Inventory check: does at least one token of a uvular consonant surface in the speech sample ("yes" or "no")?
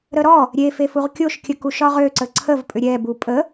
yes